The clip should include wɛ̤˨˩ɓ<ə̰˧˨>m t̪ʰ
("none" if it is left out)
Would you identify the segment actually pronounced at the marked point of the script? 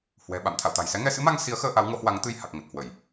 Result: a̰˧˨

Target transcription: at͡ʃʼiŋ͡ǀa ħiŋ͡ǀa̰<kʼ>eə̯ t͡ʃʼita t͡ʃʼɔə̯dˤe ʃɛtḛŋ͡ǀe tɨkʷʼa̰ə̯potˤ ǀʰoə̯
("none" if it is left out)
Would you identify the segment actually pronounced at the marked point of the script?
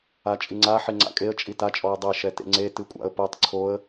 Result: kʼ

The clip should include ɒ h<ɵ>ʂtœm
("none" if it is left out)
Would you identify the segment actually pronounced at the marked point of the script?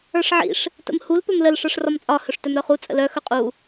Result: ɵ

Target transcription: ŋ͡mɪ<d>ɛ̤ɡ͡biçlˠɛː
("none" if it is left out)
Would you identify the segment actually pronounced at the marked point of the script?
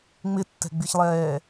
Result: tː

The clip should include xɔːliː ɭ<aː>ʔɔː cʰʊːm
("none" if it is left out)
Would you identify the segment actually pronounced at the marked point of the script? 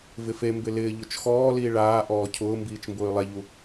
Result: aː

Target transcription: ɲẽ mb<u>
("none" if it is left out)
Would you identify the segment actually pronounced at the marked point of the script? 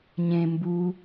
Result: u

